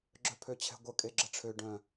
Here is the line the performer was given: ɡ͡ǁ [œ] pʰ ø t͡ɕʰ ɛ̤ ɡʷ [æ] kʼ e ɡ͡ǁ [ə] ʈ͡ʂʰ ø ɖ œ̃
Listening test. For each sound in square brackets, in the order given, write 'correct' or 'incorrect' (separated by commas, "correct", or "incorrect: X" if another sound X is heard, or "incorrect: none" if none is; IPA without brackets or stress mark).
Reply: correct, incorrect: ə, correct